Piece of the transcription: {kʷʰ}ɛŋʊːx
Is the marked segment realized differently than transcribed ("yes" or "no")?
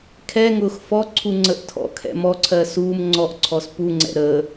yes